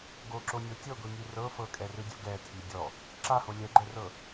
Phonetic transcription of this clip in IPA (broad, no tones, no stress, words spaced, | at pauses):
ɡoǁonʲo tʲɤɡʷiŋi rɤ fɤkʼɛrɯdʲo ɡɛtʰi dʲɔ | ǁaho lʲɛɡ͡ǃɛrɤ